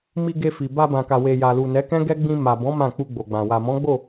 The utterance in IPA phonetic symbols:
mi˧ɡe˧fi˨ ba˧bã˨ka˨ we˨ja˨lu˨ nɛ˨˦kɛ̃˦ɡɛ˦ɡ͡bĩ˧ ma˨bɔ̃˨˦ mã˦˨k͡pu˧ɡ͡bo˨ɡ͡bã˨ wa˨mɔ̃˨˦ɡ͡bo˦˨

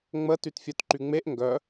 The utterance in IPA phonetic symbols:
ŋ͡mə tytfʲœtǃyŋ͡meʔ ŋɡœ

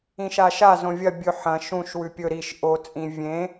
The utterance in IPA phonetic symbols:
ĩʃaʃa zõvʲɐ bʲɵ ħɐ̃ ʃũʃ wʉpʲɵ ɾiʃ ʔot͡sʼĩ vʲẽ

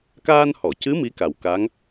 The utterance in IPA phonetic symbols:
kaː˧nhɔ˨˩˨cɨ˧˥ mi˧˥ka˨˩wka˧˥ŋ

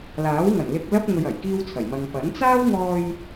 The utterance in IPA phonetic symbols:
laː˨˥wŋɐ˨˩n lɪ˧k̚lɐ˥p̚ ŋɵ˧ɥɐ˨˩jkiː˥wt͡sʰɐ˨˩j mɐ˨ŋ pɐ˨˥n t͡saː˥wŋɔː˧j

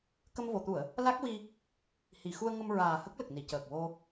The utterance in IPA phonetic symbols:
kə˧mvo˨˩˨ t̪u˨˩˨ə̯ | la˦˥k̚wi˧ | hi˨˩˨xu˧ə̯ŋə˧mɹaː˨˩ hə˦˥k̚lə˨˩k̚ni˨˩˨ cəː˨˩k̚ wo˧

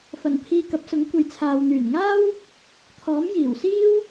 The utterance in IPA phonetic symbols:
fɐ˨˩n pʰiː˧kɐ˨˥p̚sʊ˨˥ŋ kʷɐ˨jt͡sʰaː˨w n̪yː˨˩nŋaː˥w | t̪ʰɔː˨˥m jiː˨˩wsiː˥w

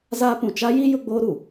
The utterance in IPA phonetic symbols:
zaː˦pũ˨ t͡ʃa˦ji˦ jʊ˦ɡ͡boː˦ɾu˨

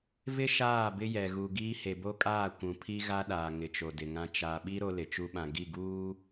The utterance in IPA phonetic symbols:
vɪ˦ ʃaː˦˨bɪ˦jɛ˨ ɣu˨ɡiː˦ he˨bo˦kʼaː˦˨ kʷũ˨pʰi˦ ɣa˦ɗaː˨ ŋɪ˨t͡ʃo˨dɪ˨ŋã˦ t͡ʃa˨ɓi˦ ɾo˦lɪ˨t͡ʃu˦ɓã˨ ɡi˦˨ɡuː˦

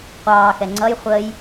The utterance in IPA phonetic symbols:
qʷɑːxɛ ŋ͡ǀʌj χʷəːj

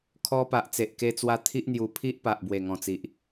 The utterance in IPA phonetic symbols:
kʰɔ˧ pa˨ʔt͡se˨ʔke˧t͡swa˧ t̪ʰi˦ʔn̪ju˧pʰi˦ʔ pa˨ʔbwe˨˩ŋɔ̃˨˩ t͡si˨ʔ

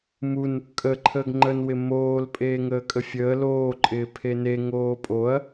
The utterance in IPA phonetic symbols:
mun | kʼəǃʰəːɡ ŋ͡ǃənwɪ moːl pʼeːŋəːkʼəfʲəː loːǃʼɪː pʰene ŋoːpʼoɐ̯

